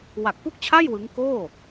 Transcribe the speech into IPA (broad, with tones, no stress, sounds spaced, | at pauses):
w a˨˩ k̚ p u˥˩ k̚ t͡ɕʰ a˥˩ j w ɯ˦˥ ŋ k oː˥˩